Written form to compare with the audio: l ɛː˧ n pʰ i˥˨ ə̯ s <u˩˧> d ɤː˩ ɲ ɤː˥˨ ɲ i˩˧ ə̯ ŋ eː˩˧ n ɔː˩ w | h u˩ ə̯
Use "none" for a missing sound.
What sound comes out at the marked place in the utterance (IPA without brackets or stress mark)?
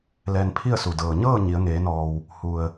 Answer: u˩